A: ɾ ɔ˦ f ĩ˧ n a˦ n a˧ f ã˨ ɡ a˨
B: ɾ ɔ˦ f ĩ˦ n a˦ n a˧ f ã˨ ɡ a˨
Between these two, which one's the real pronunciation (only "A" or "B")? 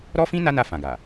B